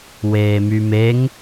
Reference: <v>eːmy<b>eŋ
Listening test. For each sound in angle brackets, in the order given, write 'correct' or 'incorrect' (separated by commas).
incorrect, incorrect